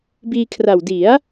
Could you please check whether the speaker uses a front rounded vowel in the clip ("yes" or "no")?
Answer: no